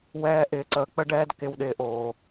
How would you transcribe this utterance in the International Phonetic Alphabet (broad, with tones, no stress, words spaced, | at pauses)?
wɛː˦ʔɪː˧ ǀəː˧k͡pə˦ɖɛː˦d kɪ˧w ɗɪː˧ʔoː˨